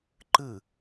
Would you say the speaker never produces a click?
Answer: no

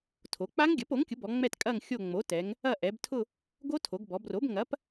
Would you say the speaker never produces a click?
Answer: yes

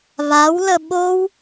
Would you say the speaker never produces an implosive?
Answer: no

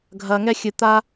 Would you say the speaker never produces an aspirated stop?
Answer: yes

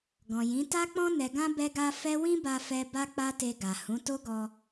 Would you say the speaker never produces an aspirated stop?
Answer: yes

